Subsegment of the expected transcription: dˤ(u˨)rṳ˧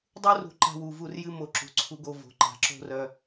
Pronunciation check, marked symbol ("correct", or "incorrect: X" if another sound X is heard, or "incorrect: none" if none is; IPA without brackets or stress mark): incorrect: u˦